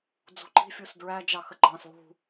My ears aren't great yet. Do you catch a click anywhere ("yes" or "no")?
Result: yes